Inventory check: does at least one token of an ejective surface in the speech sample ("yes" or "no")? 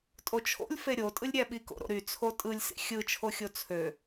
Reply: yes